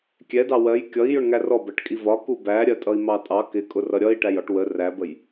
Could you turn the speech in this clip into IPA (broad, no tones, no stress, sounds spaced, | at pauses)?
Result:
kʲ ɛ d ɑ w ɜ j kʲ ʌ i̯ j ʊ ɳ ŋ æ r ɔ b ɜ ʈ kʼ i v ɒ k u b æ ɾʲ ɜ tʼ ʌ i̯ m ɑ tʼ ɑ k ɪ kʼ ʊ r ʌ ɾʲ ʌ i̯ ʈ æ j ɒ ʈ w ə r æ b ə j